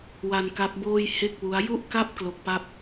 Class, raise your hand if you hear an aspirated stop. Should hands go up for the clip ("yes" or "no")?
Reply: no